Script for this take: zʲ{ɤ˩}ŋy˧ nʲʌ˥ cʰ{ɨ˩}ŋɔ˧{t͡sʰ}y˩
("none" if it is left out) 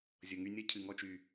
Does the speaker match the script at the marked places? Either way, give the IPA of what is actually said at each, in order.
ɤ˩, ɨ˩, t͡ʃ

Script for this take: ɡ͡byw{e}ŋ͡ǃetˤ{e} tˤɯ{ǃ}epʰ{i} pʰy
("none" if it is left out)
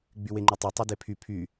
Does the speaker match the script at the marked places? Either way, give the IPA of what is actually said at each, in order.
e, e, d, y

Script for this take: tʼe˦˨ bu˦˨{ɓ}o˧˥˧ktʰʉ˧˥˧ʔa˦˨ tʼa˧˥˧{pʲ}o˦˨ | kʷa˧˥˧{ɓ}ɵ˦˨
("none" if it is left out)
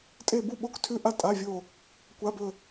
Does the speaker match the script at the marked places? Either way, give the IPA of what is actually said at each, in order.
ɓ, vʲ, b

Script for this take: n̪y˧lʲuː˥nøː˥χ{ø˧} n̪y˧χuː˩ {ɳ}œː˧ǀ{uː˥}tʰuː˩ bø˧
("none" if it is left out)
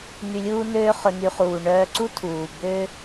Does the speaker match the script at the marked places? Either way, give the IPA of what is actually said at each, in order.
ɵ˧, ɳ, u˥

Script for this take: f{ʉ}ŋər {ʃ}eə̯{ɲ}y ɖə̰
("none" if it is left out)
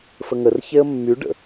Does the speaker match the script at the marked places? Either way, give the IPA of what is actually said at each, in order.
ə, ç, mː

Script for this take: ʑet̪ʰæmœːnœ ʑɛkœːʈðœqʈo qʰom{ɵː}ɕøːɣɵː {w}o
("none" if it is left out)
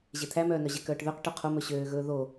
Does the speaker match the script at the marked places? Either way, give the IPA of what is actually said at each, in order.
ɵ, ð

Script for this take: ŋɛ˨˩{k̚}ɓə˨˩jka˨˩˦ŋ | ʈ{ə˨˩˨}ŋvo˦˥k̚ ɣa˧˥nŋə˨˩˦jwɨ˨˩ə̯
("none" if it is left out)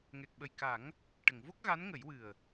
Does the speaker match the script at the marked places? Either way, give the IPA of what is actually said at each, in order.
k̚, ə˨˩˨

